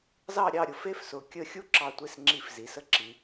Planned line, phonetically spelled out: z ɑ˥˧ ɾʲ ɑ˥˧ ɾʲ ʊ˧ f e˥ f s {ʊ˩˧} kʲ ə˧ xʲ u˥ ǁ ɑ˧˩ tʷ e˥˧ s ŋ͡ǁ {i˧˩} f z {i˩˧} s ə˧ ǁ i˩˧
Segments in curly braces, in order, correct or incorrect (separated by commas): correct, correct, correct